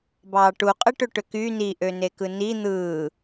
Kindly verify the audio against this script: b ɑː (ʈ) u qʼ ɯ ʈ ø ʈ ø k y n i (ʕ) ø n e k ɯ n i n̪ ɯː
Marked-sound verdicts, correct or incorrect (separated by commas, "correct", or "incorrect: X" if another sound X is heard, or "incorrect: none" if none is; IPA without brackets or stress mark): correct, incorrect: ʔ